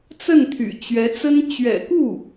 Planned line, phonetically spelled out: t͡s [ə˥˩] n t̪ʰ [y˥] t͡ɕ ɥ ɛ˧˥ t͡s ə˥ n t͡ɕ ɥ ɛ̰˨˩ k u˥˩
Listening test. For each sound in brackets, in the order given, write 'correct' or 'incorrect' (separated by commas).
correct, incorrect